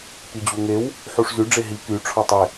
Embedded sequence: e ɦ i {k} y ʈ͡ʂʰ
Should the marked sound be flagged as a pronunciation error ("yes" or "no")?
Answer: no